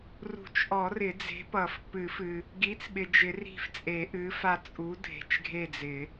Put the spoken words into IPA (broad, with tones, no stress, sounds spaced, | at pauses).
r ṳ˨˩˦ t͡ʃ ʔ ɔ˨˩˦ r ɪ˨˩˦ d͡z e̤˨˥ p ʌ˨˩˦ f p ɨ˨˩˦ f ɨ˨ | ɡ i˨˥ t͡s ɓ ɪ˨ d͡ʒ ɪ˨˩˦ r i̤˦˨ f t͡sʼ e˨˩˦ ʔ ɨ˨˥ f a˦˨ t͡sʼ u˨˥ dʱ e̤˨ t͡ʃ ɡʱ e˦˨ d͡z ɪ˨˩˦